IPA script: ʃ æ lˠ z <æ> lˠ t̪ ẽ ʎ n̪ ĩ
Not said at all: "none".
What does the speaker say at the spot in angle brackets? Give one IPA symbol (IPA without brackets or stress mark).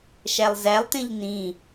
æ